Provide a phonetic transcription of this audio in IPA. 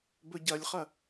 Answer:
b ɵ ɟ ɐ lʲ χ ɐ

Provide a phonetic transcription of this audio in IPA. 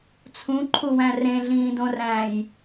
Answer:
t͡sʰ ũ ǃʰ u w æ̃ r ẽ ɮ ĩː d õ r æ̃ː j

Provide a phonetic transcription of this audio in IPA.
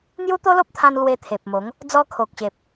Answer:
n̪ j u˦ t̪ o˦ l o˦ p̚ t̪ʰ ã˧ n l w e˧ t̪ʰ e˨ p̚ m o˨˦ ŋ | d͡z ɔ˧ kʰ o˨ k̚ ɕ e˨ p̚

